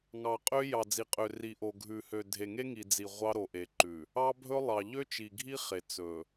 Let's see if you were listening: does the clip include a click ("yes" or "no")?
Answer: yes